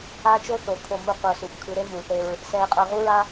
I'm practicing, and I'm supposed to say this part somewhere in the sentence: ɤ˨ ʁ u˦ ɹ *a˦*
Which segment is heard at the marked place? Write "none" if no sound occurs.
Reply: a˦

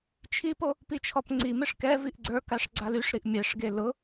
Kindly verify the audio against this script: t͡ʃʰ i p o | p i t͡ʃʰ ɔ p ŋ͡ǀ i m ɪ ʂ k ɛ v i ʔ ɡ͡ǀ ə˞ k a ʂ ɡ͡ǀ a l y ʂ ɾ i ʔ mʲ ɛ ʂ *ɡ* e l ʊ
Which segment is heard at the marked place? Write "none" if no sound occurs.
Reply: ɡ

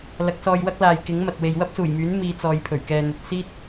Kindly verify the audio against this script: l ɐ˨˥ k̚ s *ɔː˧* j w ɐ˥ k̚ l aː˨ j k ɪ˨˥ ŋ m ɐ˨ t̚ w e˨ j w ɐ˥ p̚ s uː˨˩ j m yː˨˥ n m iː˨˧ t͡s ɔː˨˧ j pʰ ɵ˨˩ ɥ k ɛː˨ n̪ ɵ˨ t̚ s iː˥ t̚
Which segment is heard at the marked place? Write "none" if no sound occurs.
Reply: ɔː˧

